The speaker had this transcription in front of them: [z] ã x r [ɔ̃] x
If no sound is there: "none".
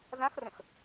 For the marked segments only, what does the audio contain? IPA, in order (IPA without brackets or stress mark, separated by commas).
z, ə̃